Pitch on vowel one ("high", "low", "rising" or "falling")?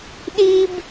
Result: high